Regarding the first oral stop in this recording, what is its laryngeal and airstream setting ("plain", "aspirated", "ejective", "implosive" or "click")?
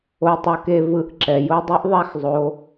plain